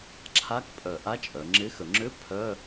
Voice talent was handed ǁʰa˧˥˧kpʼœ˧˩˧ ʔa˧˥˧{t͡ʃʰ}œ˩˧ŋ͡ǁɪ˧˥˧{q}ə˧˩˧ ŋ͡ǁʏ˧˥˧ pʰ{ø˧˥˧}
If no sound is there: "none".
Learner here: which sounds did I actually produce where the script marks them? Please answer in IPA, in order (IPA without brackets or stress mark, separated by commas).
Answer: t͡ʃʼ, x, œ˧˥˧